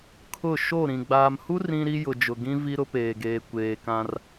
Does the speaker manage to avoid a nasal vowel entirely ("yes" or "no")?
no